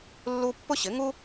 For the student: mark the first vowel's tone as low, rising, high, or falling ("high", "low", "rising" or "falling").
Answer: high